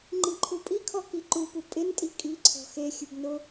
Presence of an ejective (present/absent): present